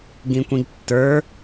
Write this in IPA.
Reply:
ɡ ĩ kʷ ĩ ɡ tː ə˞

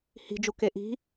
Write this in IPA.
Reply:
h i̤ d͡ʒ u k e ʔ i̤

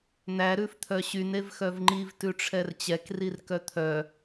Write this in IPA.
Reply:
n̪ æ ɾ ʉ f t̪ʰ œ ɕ y n e v x œ v ŋ͡ǃ i v t ʉ ʈ͡ʂʰ ɛ r t͡ɕ ɛ k r i r k œ t̪ʰ œ

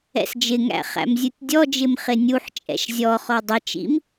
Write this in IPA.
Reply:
ɛ̰ s d͡ʒ ɪ ŋ æ̰ χ æ̰ m zʲ u tʲ dʲ ɔ d͡ʒ ɪ m χ ɪ nʲ u ħ t͡ʃʼ ɛ̰ ʃ zʲ ɔ χ ɔ dˤ ɪ t͡ʃ ḭ m

